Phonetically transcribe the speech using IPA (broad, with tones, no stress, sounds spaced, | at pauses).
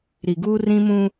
ɾ i˨ ɡ uː˦ r ĩ˦ m ũ˦